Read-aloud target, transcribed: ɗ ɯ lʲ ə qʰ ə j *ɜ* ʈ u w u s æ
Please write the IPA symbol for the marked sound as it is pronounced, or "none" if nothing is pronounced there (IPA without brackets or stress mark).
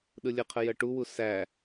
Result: ɜ